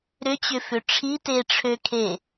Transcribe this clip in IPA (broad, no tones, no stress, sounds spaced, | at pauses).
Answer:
ɾ ʏ t͡ɕ ʏ f ʏ ʈ͡ʂʰ i t e ʈ͡ʂʰ ø kʰ e